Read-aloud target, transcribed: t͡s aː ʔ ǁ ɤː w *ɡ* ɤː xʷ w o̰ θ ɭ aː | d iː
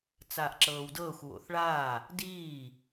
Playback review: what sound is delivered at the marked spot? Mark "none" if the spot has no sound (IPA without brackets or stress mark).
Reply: d